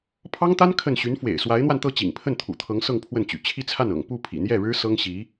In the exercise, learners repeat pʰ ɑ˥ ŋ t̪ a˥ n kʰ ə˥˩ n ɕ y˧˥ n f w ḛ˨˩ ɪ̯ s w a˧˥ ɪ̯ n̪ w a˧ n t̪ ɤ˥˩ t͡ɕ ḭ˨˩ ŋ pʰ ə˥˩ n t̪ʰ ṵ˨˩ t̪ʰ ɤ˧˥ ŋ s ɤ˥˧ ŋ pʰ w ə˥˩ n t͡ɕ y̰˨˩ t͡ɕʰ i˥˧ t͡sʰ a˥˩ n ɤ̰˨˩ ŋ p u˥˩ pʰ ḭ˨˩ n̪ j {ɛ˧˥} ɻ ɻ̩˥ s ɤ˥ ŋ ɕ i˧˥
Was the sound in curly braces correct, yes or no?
no